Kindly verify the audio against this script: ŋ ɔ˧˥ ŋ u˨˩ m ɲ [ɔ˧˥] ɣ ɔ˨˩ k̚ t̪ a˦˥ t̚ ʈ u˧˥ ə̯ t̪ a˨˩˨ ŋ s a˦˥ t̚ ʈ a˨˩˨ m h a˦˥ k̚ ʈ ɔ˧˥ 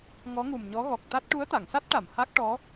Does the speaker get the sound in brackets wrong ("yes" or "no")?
no